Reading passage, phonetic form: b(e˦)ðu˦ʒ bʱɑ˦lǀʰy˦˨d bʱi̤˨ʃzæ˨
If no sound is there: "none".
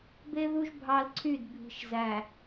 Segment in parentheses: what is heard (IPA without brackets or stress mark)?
e˦